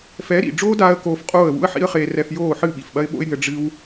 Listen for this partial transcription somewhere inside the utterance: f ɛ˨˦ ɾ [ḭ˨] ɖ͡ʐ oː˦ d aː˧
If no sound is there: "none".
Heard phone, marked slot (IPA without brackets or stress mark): ḭ˨